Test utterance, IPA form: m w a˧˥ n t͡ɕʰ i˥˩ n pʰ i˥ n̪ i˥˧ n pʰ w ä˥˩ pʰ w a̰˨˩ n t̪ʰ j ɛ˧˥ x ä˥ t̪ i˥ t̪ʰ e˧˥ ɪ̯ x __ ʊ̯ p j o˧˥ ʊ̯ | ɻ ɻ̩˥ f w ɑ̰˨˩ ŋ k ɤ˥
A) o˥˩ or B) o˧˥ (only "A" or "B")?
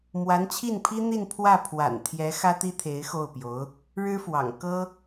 A